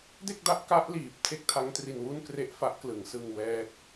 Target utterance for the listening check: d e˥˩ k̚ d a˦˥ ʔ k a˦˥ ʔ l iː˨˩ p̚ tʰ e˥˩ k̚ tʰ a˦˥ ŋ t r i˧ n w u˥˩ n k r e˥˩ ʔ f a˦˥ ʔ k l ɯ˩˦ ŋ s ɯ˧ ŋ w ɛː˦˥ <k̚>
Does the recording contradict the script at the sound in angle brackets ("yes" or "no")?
no